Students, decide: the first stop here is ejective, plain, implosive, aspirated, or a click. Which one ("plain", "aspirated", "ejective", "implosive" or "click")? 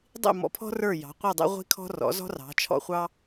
plain